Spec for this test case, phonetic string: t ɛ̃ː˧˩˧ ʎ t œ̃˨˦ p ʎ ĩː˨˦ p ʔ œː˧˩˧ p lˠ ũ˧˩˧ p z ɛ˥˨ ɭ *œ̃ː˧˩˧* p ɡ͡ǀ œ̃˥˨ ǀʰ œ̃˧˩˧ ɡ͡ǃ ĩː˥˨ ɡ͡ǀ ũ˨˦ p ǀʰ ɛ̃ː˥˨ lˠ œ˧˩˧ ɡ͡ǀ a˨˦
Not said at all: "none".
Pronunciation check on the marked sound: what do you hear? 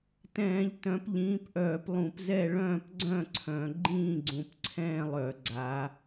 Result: œ̃ː˥˨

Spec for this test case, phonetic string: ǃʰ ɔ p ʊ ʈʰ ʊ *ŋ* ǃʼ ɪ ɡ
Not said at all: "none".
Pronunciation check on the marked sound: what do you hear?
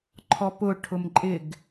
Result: m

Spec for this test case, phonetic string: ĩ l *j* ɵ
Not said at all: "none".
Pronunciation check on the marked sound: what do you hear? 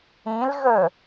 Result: ɣ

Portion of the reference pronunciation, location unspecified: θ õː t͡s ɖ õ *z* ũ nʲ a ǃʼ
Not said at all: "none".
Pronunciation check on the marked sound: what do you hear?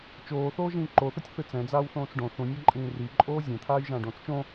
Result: θ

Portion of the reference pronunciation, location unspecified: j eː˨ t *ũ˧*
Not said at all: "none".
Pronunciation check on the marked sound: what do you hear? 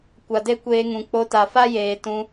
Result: ũ˧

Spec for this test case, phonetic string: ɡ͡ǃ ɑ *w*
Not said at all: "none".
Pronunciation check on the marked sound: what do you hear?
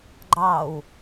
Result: w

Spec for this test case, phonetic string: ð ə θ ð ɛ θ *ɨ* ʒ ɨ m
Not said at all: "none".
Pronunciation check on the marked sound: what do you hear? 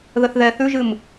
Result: ʉ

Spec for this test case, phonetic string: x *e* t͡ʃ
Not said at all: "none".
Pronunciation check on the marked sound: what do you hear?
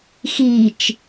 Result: i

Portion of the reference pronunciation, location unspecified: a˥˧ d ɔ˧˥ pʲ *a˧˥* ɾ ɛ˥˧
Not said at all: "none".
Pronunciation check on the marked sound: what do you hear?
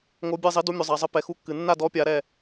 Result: a˧˥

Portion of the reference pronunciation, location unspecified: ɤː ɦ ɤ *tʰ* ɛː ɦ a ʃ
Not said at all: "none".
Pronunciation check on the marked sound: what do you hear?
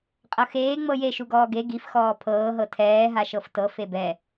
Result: tʰ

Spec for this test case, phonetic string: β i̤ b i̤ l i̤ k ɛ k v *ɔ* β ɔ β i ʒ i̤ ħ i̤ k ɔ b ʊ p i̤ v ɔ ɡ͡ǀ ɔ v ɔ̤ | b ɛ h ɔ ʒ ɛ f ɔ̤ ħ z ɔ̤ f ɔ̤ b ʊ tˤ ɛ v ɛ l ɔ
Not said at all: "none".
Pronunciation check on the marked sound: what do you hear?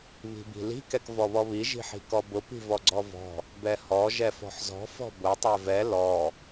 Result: ɔ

